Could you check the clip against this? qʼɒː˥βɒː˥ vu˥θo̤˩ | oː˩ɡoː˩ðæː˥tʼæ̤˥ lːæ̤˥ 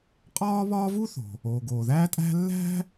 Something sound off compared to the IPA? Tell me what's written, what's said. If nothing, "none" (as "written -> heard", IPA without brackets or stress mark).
none